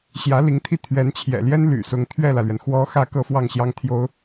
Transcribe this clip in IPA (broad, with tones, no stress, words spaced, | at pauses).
ɕjä˧˥li˧˥ŋt̪ʰi˥˩ t̪ʰɥɛ˧˥nt͡ɕʰjɛ̰˨˩ljɛ˥n ly̰˨˩sʊ˧˥ŋ t̪ʰɥɛ˥˩lä˩lɥɛ˩n xwɔ˧˥xä˧˥ kɤ˥˧fwɑ˥˩ŋɕjɑ˥ŋt̪ʰjo˥ʊ̯